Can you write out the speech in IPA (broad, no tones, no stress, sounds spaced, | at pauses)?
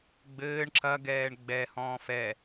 ɡ͡b ɘː ɳ ǁ ɐ ɡ ɛː ɳ ɡ͡b ɛ h ɔ̃ː f ɛ